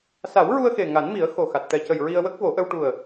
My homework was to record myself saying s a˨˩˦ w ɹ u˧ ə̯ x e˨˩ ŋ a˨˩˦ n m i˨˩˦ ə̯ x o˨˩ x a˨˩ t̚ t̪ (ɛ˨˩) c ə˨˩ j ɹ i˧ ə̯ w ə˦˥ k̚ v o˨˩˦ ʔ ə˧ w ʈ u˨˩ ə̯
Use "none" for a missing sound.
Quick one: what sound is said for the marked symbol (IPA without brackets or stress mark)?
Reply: ɛ˨˩